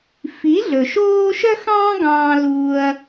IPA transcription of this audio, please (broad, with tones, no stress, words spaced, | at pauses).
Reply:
fi˨˦ɮɵ˨ʃoː˦ ʃœ˦xɑ̃ː˦ ɡɑ̃ː˦ luː˦ɐ̯